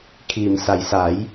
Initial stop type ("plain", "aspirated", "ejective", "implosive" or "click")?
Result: aspirated